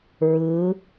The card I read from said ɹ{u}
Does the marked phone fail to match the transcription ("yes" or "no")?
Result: yes